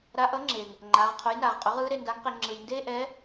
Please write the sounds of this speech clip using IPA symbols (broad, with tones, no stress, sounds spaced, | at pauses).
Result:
ɾ a˧ ʔ ʌ˧˥ ŋ͡ǁ eː˩ ŋ | ŋ͡ǃ aː˩˧ ʁ qʰ o˩˧ j n aː˩ ʁ qʼ o˩˧ ʁ ɯː˧˥ ɾ e˧ n d a˧˥ ŋ q e˧ ŋ͡ǁ ɯ˩ j n d eː˥ ʔ ɛː˧˥